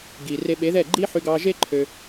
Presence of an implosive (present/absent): present